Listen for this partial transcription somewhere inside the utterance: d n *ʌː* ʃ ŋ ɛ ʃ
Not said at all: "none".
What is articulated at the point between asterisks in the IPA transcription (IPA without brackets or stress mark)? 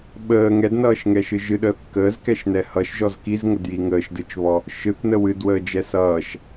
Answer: ʌː